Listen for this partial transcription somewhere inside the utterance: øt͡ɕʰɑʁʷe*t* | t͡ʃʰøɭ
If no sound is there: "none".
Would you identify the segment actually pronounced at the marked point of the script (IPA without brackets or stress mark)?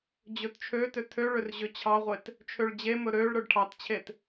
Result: t